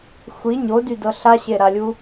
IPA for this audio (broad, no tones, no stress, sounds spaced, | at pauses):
xʷ i ɲ o d y d ɤ ɬ a ɕ e ɾ a lʲ u